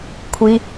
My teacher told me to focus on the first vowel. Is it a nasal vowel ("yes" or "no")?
no